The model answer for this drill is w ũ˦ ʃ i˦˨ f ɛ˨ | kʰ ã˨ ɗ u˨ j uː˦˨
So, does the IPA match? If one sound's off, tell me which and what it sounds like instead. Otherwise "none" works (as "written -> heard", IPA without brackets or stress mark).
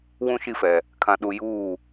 none